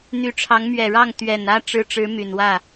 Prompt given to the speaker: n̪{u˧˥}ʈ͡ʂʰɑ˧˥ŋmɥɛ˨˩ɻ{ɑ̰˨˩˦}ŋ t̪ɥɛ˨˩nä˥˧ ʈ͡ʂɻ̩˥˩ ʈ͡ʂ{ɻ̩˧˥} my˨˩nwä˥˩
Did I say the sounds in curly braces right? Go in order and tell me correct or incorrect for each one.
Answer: incorrect: y˧˥, incorrect: ɑ˥˩, correct

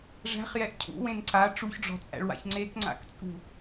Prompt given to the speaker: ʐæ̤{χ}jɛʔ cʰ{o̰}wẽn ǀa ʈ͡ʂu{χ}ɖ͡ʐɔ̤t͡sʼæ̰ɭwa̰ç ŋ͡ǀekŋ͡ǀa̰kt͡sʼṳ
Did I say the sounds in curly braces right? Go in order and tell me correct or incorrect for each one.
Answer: correct, incorrect: ṵ, incorrect: ç

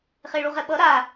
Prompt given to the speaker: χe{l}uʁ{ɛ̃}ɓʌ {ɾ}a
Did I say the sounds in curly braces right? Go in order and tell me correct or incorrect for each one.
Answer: incorrect: ɭ, incorrect: ɛ, correct

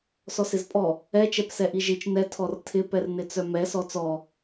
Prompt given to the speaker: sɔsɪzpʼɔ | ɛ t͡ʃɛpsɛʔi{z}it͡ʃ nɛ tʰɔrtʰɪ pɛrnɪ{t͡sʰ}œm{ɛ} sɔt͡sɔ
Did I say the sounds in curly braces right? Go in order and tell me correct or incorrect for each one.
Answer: incorrect: ʒ, incorrect: t͡s, correct

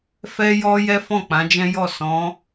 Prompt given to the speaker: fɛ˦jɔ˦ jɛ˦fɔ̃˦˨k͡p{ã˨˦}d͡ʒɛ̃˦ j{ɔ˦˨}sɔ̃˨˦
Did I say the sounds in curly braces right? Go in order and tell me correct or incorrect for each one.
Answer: correct, correct

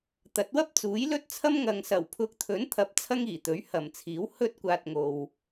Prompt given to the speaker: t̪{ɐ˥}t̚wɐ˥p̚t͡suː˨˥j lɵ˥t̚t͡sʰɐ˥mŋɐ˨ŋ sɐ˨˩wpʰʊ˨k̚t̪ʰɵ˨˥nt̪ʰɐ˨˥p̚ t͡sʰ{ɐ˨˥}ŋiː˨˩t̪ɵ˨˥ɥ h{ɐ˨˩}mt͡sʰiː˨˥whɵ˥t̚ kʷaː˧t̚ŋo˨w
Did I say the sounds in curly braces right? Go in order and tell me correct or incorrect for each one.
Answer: incorrect: ɐ˨˥, incorrect: ɐ˥, correct

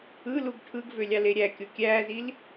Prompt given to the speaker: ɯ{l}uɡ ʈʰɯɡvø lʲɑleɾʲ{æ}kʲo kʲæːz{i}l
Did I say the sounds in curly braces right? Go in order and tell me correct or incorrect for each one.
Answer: correct, correct, correct

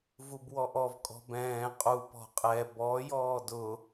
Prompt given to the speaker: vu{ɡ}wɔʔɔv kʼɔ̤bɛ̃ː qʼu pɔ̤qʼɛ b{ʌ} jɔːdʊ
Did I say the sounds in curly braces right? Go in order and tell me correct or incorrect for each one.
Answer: incorrect: b, incorrect: ɔ

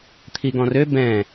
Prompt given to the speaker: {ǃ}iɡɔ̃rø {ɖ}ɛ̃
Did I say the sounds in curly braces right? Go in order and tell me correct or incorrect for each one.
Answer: incorrect: t̪ʰ, incorrect: b

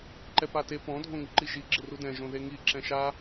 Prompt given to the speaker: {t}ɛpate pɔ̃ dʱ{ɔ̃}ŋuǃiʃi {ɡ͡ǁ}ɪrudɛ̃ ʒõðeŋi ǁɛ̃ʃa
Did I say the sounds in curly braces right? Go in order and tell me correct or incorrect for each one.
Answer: incorrect: ǃ, incorrect: õ, correct

